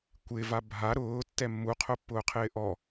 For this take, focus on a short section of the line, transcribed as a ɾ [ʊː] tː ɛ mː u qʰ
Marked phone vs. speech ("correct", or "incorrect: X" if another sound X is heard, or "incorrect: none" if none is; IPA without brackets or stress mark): correct